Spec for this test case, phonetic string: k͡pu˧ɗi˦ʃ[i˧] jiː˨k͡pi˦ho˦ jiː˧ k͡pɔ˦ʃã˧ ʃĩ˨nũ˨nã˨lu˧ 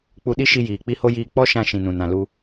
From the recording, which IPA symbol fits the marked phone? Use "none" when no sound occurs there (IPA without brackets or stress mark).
i˧